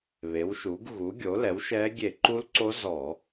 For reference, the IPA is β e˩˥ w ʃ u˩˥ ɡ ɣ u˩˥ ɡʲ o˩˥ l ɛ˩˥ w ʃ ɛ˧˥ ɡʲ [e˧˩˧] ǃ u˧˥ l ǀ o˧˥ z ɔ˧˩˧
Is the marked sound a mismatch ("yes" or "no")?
no